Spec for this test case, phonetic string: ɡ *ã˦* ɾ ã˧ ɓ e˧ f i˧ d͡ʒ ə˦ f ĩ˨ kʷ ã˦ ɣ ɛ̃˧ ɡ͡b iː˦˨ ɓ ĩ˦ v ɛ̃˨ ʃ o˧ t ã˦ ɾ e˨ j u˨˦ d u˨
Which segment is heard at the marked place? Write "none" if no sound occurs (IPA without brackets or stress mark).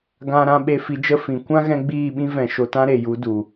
ã˧